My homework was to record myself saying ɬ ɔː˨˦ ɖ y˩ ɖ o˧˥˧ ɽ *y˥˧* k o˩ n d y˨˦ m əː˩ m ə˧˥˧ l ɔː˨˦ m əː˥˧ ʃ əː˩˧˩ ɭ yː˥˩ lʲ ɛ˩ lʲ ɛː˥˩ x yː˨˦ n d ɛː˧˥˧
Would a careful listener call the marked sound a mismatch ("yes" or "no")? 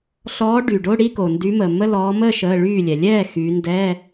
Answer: yes